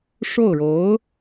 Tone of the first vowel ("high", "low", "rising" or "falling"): falling